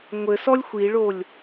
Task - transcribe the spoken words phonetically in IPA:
ŋʷɘ sɔlʲxʷiɭolʲ

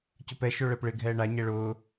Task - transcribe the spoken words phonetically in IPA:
cʊpɛ ʃoɭɛpɭɪ ɡʱɛːɳa ɲɛɭʊː

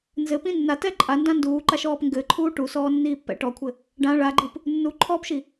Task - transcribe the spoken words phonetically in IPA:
nzɘpĩ nːatɛ ǃʼandã nduːǃaʃɔːp ŋɡɘǃʰuː ʈusɔːnːiːpːɛ̰ ʈɔkʷʰɘ | ɖã ɭaɡ͡ǃɨp | nːuǃʰɔːpʃi

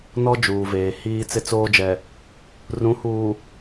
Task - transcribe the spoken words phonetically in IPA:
nɔ˦ d͡ʒuː˨veː˨ hiː˦ t͡sɪ˦t͡soː˦d͡ʒɛ˨ | rũ˨˦huː˨

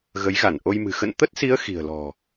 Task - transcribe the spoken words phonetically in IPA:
ɣə˨˦jɣa˧˩nʔo˧jmɨ̤˨˩ xə̰˧˨nt̪ə˦˥t̚si˨˦ə̯ xi̤˨˩ə̯lɔ̤˨˩

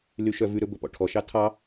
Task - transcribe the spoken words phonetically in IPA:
lyʃœvʉɾɵ bɵpɔ̰ʈʰɔʃɑ tʰɑ

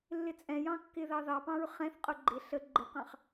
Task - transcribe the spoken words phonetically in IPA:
lːɪt͡sʼɛ̃jɑ̃ kːɪðɑðɑpɑ̃ɹ χɛ̃θqʼʊ ɡ͡ǃɪ ɬə ɡ͡ǃɪqɑ̃χ

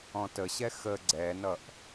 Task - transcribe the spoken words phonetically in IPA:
ɔ̃təɕɛ xə ɡ͡ǀɛnʌʔ

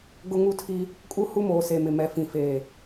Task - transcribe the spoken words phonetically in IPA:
ɡʊ˦ŋu˦tʰi˦ | kʼu˦hu˦moː˨se˨ mɪ˨mɛ˨fĩ˨feː˨

